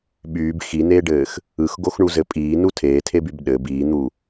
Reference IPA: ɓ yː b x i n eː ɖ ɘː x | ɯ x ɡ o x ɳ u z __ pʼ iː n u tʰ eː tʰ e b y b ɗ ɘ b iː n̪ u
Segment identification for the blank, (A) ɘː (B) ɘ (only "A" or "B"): B